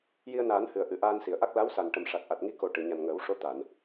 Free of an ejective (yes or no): yes